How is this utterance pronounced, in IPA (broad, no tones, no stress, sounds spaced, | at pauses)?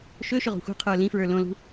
ʃ ɵ ʃ ʏ ʁ o̤ xʷ i̤ qʰ ə˞ l ĩ f ɹ ə˞ l õ l ṳ